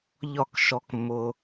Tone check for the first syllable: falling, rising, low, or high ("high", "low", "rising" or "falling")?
falling